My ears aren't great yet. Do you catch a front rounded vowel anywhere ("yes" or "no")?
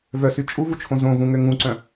yes